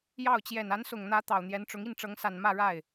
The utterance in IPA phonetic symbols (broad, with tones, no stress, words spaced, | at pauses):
jɑ˥˩ʊ̯ t͡ɕjɛ˨˩na˧˥nsʊ˨˩ŋn̪ä˧˥ t̪ɑ˨˩ʊ̯n̪jɛ˧˥nʈ͡ʂʊ˧˥ŋ i˥˩nʈ͡ʂɤ˧˥ŋsa˨˩n mä˥˧ɻa˥˩ɪ̯